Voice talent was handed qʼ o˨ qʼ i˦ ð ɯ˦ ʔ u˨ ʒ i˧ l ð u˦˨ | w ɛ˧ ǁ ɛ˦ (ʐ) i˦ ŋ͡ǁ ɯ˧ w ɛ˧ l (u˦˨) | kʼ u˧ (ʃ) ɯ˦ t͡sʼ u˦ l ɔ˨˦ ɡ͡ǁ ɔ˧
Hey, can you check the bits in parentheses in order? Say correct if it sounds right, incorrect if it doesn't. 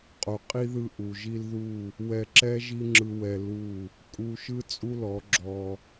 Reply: incorrect: ʒ, correct, correct

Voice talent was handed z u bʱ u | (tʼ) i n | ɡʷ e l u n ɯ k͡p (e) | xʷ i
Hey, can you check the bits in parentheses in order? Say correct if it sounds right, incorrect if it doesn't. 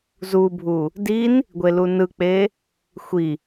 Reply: incorrect: d, correct

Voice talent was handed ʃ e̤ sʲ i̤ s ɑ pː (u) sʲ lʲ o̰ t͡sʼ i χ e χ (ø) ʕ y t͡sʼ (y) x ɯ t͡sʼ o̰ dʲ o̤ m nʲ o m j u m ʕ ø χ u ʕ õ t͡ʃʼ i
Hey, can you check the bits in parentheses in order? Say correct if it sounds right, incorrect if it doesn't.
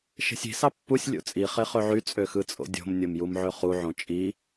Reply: correct, correct, incorrect: ø

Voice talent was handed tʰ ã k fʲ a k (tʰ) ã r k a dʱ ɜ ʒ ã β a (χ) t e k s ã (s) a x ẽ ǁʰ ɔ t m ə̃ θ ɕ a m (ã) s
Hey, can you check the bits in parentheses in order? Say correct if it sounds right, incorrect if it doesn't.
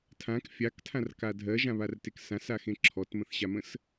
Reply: correct, incorrect: r, correct, incorrect: ə̃

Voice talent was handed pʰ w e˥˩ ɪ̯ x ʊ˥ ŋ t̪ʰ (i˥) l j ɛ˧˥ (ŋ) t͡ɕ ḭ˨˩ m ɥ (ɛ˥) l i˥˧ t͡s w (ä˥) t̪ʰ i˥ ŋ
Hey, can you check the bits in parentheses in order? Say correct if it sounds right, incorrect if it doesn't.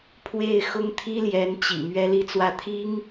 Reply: correct, incorrect: n, correct, incorrect: ä˥˩

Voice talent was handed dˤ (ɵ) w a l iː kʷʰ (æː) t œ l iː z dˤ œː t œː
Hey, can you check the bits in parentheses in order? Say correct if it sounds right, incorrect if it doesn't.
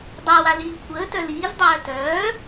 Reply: incorrect: œ, incorrect: əː

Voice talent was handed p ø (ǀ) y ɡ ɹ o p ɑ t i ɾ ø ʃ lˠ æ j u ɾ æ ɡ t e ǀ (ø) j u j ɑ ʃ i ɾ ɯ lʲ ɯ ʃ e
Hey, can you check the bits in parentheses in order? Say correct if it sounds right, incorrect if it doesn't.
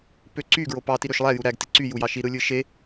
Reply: correct, incorrect: y

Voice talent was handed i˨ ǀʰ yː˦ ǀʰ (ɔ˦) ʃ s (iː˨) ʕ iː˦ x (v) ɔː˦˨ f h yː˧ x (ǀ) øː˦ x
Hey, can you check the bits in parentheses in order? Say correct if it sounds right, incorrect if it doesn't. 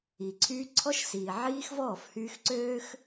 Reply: correct, correct, correct, correct

